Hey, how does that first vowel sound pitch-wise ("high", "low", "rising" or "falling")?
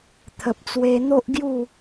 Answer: low